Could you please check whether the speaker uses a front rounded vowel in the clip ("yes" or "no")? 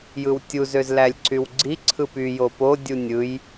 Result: yes